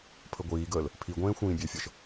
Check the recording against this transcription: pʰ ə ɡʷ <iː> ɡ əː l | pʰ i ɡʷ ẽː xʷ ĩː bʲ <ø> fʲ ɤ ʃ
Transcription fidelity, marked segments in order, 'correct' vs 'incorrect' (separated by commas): correct, correct